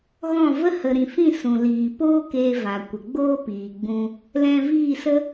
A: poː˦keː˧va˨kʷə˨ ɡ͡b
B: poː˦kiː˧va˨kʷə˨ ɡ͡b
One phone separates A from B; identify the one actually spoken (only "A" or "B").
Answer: A